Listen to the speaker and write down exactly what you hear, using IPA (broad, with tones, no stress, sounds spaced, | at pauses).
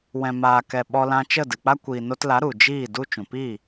w ɛ̃˨ m aː˨ k ɛ˨ ɓ ɔ˧ l ã˧ t͡ʃ ə˦˨ d ɨ˨ k͡p a˦ kʷ iː˨ n o˧ t l a˨˦ ɾ u˨ d͡ʒ iː˦˨ d u˦ t͡ʃ ũ˨ p i˦˨